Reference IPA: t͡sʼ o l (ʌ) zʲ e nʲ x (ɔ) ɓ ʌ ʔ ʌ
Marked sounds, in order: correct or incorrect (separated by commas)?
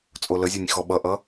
incorrect, correct